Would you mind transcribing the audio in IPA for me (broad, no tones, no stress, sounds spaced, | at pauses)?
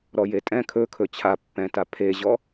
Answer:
ɾ ɔ j e tʼ ɛ̃ kʰ ɵ kʰ ɵ t͡ɕʰ a pː ɛ̃ t a pʰ e ʑ ɔ